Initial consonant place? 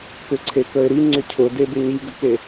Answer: velar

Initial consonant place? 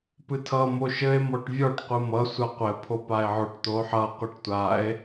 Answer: labial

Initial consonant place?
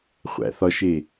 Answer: uvular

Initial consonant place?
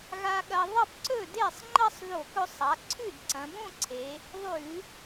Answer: velar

